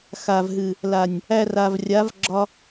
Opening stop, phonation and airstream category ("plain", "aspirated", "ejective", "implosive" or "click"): click